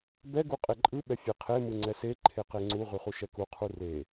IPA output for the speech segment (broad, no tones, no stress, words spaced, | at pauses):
bɛ ɡuqʼeǃʼɯ ɓɛfʲeqʰe mɯŋ͡ǀɛse ǃʰeqeŋ͡ǀu ʁyχuʃɛku qʰure